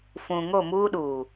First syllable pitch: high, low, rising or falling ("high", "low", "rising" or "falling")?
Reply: low